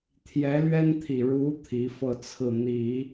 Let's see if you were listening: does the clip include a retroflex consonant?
yes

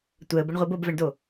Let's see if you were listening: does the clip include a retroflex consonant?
yes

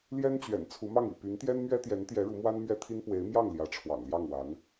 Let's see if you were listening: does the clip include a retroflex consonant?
yes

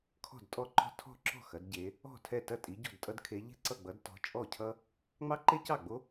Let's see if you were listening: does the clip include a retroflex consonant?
no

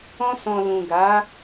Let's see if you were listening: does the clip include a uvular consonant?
no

